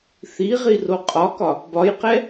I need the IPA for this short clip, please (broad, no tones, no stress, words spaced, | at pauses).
θiʁi roqʼɒkɒ | bɒjqɛ